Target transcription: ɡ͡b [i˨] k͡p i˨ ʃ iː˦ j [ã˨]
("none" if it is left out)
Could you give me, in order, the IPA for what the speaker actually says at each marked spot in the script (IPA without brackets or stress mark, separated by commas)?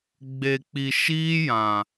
e˨, ã˨